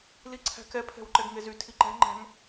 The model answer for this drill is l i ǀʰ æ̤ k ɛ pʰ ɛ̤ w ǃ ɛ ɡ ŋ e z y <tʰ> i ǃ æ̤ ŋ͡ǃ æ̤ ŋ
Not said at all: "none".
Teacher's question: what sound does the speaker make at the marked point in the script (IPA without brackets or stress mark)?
tʰ